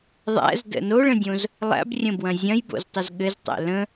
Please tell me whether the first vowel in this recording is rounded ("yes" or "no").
no